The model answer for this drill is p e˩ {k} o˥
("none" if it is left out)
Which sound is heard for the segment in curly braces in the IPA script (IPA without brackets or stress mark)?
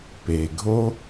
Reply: ɡʱ